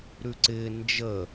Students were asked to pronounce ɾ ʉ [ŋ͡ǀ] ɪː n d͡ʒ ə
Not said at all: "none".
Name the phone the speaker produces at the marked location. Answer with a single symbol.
ǀ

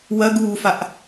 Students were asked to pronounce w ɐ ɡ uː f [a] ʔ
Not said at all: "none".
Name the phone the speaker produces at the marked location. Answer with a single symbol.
a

